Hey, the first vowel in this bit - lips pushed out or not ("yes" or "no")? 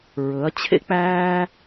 yes